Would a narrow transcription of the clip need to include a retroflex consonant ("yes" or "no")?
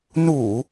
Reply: no